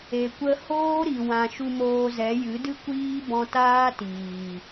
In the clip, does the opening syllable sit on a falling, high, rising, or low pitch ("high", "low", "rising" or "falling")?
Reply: low